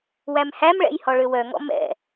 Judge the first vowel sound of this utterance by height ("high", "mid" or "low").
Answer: low